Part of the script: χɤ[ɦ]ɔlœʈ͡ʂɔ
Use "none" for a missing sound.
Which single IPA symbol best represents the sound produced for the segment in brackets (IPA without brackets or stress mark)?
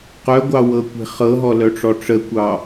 ɦ